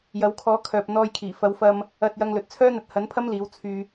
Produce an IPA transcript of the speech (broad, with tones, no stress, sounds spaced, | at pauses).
j ɐ˨˧ w kʰ ɔː˨˥ kʰ œː˨ p̚ n̪ ɔː˧ j kʰ iː˨˩ f ɐ˨˥ w f ɐ˧ m | ɐ˧ t̚ j ɐ˧ ŋ l ɵ˨ t̚ t͡sʰ œː˥ n̪ ɐ˨˥ t̚ h ɐ˨˥ n pʰ ɐ˥ m l iː˨˥ w t͡sʰ yː˧